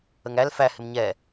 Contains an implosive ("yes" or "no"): no